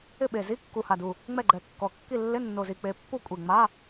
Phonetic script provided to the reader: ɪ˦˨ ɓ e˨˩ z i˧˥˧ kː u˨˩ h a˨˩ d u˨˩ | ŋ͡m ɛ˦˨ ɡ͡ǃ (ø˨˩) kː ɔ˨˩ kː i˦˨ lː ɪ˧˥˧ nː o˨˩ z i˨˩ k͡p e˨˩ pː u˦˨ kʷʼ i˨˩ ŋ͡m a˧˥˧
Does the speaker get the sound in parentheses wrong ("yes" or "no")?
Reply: yes